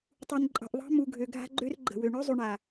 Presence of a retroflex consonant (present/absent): present